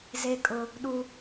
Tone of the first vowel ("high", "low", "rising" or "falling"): high